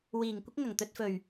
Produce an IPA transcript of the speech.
w iː˨˩ ŋ kʷ ɪ˥ k̚ ŋ ɐ˨˩ ŋ t̪ ɵ˧ t̚ f ɵ˨˩ ɥ

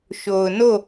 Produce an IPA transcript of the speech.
ʃ o˨ ʊ̯ n o˦˨

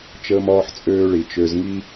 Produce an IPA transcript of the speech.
t͡ʃ əː˧ m ɒː˧ ħ t͡sʼ øː˧ ɭ i˨ t͡ʃ ø˨ z ŋ i˧

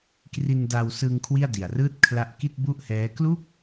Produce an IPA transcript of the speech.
k r i˧ n d a˧ w s ɯː˧ ŋ kʰ w i˥˩ a̯ d i˨˩ a̯ r ɯː˥˩ t̚ kʰ l a˦˥ ʔ k i˥˩ t̚ b u˥˩ ʔ h ɛː˦˥ k l u˥˩ k̚

